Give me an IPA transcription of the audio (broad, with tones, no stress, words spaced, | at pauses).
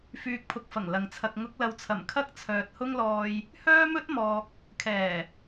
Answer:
fyː˨k̚pʰʊ˨k̚fɐ˨˩ŋ lɐ˨ŋt͡sʰɐ˧k̚ ŋʊ˨˥k̚lɐ˨wt͡sʰɐ˨˩m kʰɐ˥k̚t͡sʰœː˨t̚hʊ˥ŋlɔː˧j | hœː˥mɵ˥t̚mɔː˨k̚ | kʰɛː˨˩